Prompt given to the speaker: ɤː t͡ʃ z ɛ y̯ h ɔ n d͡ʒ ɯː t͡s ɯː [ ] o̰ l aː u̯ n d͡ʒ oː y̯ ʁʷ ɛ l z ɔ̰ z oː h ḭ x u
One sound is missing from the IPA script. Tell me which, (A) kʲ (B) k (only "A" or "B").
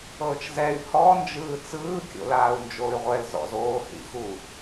A